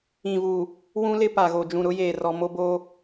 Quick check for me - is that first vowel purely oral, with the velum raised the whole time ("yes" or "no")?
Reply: no